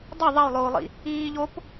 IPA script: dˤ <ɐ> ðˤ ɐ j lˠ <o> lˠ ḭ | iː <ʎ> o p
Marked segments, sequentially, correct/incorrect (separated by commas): correct, incorrect, correct